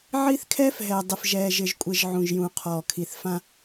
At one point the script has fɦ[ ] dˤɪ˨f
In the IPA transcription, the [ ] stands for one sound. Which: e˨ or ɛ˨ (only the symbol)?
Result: ɛ˨